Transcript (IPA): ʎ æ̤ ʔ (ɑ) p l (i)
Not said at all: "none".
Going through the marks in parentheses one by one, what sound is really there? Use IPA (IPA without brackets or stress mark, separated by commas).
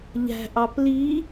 ɑ, i